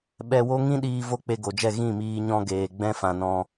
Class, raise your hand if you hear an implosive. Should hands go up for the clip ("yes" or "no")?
yes